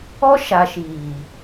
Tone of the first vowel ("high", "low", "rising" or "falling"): high